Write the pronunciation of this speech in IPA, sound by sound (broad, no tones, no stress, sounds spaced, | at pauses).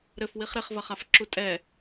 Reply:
ɾ ɘ f w i χ ɾ e χ v ɐ χ a f ǁ u tʼ ɛ